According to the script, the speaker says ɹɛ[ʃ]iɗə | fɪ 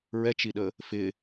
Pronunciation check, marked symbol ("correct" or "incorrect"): incorrect